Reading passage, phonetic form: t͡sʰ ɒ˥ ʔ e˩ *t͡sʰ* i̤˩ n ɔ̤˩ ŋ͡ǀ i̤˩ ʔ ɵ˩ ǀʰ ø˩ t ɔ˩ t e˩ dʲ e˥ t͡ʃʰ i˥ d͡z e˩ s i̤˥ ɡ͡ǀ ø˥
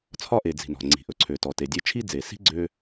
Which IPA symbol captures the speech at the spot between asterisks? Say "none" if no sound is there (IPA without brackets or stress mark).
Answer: d͡z